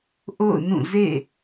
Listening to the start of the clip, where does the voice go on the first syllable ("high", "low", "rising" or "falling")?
falling